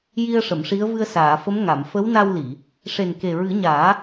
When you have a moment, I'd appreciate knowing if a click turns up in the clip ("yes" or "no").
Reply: no